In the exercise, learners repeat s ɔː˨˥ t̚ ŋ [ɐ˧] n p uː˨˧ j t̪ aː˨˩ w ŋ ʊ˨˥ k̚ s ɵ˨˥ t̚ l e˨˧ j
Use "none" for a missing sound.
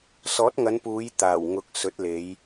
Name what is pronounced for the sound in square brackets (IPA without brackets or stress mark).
ɐ˨˧